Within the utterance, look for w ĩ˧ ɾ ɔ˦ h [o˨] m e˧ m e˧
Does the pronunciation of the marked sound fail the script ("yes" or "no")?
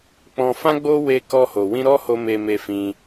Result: yes